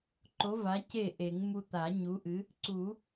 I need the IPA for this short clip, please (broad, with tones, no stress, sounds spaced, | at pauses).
ǃ o˨˥ v a˨˥ c e˥˩ ʔ e˨˩˦ ŋ m u˧ t̪ a˨˩˦ ɲ u˨˥ ʔ ɨ˨˥ | ǀ u˨˩˦